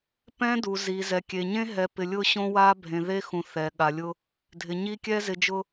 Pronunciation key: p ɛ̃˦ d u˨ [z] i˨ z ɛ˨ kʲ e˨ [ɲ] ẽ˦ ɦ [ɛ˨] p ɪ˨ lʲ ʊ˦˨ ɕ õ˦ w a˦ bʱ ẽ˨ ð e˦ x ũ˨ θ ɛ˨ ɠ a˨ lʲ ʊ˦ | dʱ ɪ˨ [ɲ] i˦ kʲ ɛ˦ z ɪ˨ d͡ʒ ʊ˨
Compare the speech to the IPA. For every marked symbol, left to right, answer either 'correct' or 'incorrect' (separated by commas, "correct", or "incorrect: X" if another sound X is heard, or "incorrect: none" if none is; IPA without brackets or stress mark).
correct, correct, correct, correct